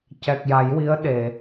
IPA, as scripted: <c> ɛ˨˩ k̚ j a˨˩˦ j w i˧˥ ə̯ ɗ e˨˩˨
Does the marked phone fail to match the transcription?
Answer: no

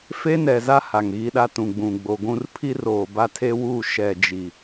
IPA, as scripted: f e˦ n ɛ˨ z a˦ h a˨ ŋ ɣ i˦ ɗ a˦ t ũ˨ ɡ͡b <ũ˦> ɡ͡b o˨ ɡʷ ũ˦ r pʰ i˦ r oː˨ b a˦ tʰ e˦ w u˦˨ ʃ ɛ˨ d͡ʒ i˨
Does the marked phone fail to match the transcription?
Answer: yes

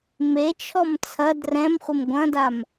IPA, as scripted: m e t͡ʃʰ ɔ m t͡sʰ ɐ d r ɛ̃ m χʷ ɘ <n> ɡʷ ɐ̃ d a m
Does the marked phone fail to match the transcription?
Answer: yes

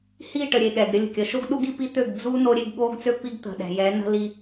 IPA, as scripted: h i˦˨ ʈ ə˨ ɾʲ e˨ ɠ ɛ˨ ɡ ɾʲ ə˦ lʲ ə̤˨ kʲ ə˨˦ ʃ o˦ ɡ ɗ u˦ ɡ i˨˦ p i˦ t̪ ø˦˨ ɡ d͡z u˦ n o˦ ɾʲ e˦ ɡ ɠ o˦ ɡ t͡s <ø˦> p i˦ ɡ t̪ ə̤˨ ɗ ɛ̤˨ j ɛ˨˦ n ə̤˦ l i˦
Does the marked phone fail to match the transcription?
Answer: no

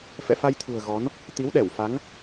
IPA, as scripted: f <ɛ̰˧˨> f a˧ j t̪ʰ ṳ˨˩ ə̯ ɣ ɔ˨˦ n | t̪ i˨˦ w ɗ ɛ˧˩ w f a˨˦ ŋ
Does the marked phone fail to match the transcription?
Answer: no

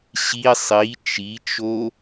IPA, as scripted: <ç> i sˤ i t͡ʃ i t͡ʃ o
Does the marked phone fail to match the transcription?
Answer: yes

